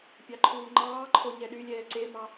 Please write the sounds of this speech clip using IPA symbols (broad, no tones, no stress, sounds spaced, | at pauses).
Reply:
pʲ ɑ ǃʰ uː ŋ͡ǃ ɑː ǃʰ o ɲ ɛ ɗ y lʲ ɛː ǀ e m ɑ